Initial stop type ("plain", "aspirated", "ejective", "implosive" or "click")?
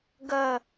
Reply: plain